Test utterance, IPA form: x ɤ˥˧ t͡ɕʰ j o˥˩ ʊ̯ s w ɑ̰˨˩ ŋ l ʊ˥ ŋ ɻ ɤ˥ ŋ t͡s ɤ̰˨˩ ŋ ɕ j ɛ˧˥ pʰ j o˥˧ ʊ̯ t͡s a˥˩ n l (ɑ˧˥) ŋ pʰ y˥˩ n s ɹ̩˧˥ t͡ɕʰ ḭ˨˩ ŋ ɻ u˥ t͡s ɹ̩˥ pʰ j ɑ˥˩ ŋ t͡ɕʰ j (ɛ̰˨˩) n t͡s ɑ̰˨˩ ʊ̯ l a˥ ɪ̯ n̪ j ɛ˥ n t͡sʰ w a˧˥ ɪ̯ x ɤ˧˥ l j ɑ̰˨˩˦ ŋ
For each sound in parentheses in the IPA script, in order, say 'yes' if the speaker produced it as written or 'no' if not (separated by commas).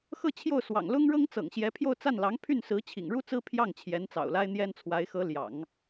yes, no